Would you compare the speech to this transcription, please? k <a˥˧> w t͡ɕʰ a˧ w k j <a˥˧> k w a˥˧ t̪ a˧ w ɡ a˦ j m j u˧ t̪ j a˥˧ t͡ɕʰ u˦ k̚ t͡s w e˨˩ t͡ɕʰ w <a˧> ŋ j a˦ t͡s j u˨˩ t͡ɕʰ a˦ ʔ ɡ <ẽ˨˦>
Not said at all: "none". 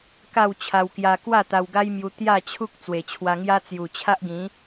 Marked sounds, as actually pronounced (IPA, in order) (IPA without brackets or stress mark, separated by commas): a˥˧, a˧, a˧, ĩ˨˦